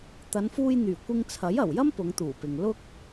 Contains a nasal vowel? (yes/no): no